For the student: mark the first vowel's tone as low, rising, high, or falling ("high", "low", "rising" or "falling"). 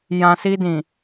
low